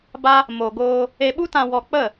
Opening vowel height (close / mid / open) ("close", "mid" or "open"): open